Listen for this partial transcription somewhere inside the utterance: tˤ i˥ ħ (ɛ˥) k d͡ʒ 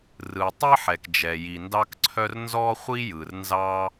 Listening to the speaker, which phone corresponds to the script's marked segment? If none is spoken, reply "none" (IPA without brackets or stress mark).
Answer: ɛ˩